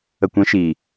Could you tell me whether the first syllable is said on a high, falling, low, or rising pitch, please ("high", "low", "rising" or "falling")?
low